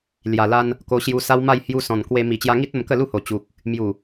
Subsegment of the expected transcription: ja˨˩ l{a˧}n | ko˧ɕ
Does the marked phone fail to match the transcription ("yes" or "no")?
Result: no